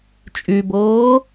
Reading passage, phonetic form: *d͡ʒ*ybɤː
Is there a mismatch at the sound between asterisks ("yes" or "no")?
yes